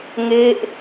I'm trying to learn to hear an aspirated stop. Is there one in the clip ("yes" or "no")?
no